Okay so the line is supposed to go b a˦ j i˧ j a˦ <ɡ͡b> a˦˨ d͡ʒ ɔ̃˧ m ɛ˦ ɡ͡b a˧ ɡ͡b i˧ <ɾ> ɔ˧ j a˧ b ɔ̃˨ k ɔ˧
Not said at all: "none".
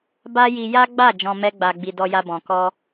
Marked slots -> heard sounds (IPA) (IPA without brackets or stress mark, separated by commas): ɡ͡b, d